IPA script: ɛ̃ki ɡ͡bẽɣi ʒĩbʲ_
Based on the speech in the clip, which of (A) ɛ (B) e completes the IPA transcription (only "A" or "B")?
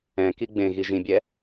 A